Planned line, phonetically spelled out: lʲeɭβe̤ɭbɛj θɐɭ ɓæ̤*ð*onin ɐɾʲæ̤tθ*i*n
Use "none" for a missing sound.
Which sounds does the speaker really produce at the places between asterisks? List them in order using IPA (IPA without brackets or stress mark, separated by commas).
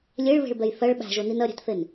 ʒ, e